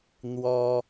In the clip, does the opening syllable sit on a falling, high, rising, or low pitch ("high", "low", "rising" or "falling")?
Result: high